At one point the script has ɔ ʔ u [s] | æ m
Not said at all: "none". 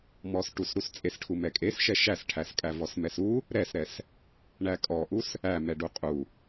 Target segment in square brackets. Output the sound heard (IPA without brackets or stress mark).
s